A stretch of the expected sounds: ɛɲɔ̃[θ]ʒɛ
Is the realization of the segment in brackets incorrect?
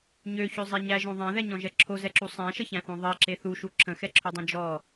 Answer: yes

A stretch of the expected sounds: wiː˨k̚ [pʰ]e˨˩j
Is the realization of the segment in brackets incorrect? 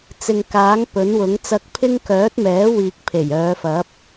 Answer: no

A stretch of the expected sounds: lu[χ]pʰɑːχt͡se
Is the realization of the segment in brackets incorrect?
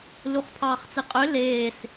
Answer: no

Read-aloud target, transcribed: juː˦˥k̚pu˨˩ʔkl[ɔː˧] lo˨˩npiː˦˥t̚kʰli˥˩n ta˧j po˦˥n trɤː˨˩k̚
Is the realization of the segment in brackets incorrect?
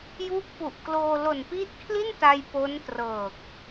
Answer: yes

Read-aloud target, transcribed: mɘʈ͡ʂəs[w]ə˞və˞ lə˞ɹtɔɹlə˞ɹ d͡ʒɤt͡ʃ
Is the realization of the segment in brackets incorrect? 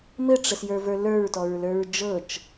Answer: yes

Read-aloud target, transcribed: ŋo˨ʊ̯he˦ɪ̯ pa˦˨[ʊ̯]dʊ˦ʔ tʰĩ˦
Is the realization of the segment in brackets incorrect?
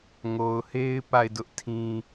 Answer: yes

